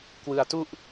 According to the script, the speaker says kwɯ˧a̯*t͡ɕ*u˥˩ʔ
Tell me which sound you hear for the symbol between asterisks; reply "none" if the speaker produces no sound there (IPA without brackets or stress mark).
t